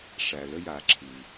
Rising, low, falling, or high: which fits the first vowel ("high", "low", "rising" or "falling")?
low